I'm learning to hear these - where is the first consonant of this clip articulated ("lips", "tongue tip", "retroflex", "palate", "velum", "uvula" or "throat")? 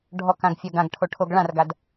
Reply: retroflex